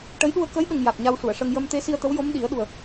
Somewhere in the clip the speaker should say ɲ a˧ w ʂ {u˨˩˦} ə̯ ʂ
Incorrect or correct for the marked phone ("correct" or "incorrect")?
incorrect